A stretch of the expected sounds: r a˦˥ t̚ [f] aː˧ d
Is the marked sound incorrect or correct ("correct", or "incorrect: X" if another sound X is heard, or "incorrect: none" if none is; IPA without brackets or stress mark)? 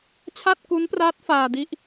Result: correct